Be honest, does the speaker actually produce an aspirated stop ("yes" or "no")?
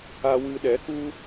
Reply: no